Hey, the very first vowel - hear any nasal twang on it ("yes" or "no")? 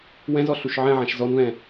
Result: yes